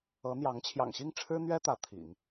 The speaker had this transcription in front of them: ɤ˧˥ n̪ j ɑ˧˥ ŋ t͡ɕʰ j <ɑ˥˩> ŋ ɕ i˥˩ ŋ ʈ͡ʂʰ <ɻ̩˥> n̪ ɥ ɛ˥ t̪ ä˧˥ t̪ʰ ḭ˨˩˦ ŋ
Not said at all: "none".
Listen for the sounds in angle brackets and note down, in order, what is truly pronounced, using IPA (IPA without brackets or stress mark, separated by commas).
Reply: ɑ̰˨˩, ɻ̩˥